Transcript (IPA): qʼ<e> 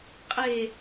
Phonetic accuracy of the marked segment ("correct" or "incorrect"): correct